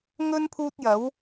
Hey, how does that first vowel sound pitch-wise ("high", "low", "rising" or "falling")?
high